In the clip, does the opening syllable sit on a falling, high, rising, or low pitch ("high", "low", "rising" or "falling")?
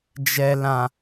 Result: low